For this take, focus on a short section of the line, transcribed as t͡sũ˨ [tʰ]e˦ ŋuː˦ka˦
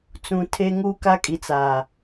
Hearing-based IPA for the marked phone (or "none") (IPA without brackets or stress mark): tʰ